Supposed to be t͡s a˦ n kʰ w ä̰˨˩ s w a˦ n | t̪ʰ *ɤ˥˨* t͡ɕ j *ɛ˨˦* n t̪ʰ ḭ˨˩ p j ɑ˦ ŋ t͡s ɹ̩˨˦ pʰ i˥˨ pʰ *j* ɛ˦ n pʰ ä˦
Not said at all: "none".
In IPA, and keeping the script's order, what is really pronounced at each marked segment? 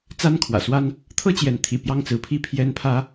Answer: ɤ˦, ɛ˨˦, j

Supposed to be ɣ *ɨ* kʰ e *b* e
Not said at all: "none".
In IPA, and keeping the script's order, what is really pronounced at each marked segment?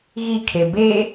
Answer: i, b

